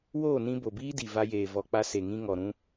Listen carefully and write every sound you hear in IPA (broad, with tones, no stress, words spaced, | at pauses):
woː˦˨nĩ˧ bo˨biː˦di˨ va˧jeː˨ vɔ˨k͡pa˧se˨ŋĩ˧ ŋɔ˨ɾũ˧